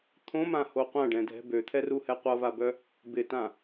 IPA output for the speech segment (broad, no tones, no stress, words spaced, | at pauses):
t̪ʰõmãho qʷãɖɛ̃dʱɛ̤ bøt̪ʰɛruhɛ qʷʌvabœ | bɪtã